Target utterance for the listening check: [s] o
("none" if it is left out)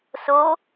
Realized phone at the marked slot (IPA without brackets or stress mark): s